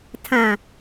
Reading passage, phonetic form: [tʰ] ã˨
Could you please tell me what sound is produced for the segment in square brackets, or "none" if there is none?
tʰ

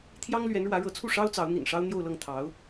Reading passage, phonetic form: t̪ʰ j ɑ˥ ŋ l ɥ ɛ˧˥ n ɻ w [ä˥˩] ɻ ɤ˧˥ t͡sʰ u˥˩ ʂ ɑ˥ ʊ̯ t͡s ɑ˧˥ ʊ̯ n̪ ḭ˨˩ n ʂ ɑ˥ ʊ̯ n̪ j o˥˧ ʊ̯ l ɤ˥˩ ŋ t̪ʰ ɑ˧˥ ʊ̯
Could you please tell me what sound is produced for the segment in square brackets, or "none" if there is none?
ä˧˥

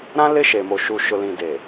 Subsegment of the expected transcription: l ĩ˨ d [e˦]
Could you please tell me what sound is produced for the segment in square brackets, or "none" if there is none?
e˨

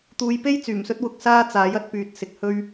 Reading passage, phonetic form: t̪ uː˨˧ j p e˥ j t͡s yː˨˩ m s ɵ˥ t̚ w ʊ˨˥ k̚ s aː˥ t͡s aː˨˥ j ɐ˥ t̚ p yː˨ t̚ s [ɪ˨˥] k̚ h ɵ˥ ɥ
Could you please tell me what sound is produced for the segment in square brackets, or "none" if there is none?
ɪ˨˥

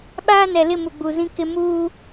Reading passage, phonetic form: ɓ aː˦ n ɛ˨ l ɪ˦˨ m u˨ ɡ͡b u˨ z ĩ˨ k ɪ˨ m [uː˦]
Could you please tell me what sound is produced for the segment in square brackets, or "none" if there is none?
uː˦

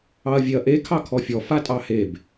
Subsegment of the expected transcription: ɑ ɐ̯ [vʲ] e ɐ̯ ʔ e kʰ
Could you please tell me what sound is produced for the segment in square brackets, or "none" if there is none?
vʲ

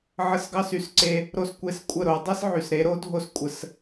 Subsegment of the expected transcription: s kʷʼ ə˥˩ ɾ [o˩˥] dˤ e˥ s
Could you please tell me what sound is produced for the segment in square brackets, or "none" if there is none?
o˩˥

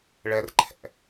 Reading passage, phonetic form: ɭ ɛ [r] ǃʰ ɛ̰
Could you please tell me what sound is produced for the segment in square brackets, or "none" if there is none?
r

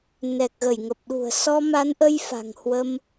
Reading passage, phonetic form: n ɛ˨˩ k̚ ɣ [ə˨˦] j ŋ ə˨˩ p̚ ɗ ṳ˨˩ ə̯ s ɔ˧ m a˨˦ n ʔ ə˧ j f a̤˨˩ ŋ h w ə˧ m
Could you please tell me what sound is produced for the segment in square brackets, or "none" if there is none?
ə˧˩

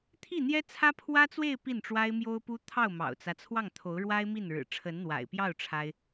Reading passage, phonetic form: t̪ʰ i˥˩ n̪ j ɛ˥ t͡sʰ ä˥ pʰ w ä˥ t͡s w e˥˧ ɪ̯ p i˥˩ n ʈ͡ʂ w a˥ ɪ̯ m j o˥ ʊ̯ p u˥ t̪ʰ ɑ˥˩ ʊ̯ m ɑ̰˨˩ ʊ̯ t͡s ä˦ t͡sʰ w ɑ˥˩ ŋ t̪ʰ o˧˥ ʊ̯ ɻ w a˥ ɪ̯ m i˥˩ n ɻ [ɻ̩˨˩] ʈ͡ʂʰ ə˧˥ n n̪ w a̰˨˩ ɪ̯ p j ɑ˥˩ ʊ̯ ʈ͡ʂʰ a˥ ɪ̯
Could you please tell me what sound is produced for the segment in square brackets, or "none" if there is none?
ɻ̩˨˩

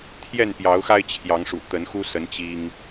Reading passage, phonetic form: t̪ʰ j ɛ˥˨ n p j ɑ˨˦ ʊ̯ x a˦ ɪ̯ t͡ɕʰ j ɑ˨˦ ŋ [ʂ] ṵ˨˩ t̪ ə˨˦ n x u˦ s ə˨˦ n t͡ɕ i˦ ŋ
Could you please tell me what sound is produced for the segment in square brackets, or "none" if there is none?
ʂ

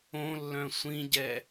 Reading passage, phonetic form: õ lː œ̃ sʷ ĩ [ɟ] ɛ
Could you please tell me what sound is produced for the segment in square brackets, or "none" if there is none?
ɟ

